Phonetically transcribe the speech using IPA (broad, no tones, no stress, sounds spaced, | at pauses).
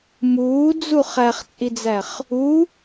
m uː d͡z u χ æ χ t͡sʼ i d͡z æ χ | u